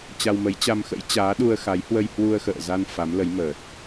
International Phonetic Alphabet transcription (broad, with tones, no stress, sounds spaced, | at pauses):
t͡ɕ a˧ w m ə˨˦ j t͡ɕ a˧ m x ə̰˧˥ j t͡ɕ aː˨˦ ɗ u˧ ə̯ x a˨˦ j h w ə˧ j h w u˧ ə̯ x ə̰ː˧˨ z a˧ n f a˨˦ m l ə˨˦ j m əː˨˩ t̚